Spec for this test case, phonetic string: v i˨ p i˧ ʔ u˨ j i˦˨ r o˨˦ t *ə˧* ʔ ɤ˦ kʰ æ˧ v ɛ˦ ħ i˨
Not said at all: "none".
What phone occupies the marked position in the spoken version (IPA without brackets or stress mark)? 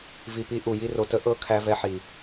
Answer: ə˨˦